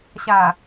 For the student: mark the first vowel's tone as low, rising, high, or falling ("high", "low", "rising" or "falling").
low